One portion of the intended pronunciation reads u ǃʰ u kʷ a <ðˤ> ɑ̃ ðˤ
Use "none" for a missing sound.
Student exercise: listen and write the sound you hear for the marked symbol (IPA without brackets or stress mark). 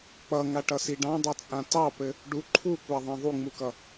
ðˤ